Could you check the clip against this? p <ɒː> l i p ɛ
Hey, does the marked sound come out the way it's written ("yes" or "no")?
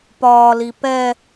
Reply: yes